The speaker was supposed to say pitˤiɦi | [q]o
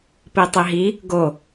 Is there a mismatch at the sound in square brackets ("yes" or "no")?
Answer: yes